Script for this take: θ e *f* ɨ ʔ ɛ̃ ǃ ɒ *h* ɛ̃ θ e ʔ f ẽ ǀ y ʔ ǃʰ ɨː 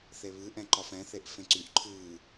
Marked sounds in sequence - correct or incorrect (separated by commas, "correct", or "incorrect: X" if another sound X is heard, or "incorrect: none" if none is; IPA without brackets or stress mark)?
incorrect: β, incorrect: f